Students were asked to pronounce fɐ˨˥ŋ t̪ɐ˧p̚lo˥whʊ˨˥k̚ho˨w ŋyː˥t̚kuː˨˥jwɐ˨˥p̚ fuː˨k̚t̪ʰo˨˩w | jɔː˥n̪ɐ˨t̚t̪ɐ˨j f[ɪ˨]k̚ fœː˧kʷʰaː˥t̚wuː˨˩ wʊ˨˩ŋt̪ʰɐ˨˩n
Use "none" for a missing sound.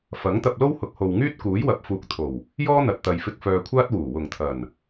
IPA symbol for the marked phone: ɪ˨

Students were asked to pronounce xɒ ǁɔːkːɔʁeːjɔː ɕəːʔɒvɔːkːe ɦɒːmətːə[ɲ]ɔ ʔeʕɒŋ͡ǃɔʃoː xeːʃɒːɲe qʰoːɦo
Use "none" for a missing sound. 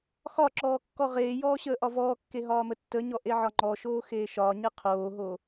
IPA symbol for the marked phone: ɲ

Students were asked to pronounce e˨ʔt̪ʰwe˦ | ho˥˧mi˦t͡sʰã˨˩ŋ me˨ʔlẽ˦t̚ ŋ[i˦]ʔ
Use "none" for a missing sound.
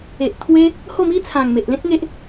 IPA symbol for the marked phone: e˦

